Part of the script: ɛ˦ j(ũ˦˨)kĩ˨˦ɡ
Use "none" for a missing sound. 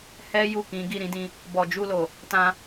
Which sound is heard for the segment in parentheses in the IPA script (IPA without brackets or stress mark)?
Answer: u˦˨